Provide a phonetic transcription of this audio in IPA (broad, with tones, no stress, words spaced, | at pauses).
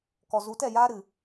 kɔ˨zu˨˦tɛ˦˨jaː˦ ɾɨ˨